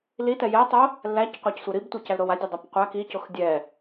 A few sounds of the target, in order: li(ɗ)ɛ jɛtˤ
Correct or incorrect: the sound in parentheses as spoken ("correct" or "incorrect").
incorrect